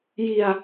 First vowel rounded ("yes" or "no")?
no